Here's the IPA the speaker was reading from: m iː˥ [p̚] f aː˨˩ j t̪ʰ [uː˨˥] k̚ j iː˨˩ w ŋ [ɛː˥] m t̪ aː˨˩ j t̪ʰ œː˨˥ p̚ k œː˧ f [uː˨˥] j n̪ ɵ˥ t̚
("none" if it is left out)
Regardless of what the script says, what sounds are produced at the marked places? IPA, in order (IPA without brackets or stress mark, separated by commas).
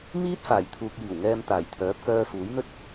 t̚, uː˨, ɛː˧, uː˨˥